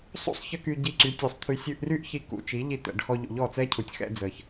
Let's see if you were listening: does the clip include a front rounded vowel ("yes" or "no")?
yes